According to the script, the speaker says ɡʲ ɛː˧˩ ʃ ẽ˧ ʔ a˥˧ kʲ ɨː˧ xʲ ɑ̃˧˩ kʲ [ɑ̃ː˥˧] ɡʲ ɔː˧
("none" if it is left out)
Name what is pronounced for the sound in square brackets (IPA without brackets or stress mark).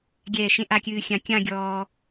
ɑ̃˥˧